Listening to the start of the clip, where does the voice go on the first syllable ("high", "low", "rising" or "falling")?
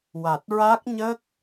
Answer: low